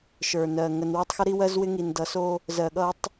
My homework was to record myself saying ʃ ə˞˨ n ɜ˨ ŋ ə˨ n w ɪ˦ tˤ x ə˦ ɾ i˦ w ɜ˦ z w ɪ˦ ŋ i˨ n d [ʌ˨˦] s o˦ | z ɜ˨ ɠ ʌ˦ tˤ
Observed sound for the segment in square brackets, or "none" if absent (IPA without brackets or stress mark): ʌ˨˦